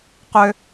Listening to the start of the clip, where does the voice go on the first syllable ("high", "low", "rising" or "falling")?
high